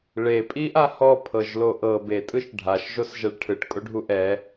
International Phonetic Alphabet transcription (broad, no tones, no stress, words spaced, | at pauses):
ɭe pʼiʔahɔ pʰɤʒloʔɤ be tʼɯʃɖʱaʃ ʒosʒɛɭʈʰɯʈ kʼoɖʱuʔɛ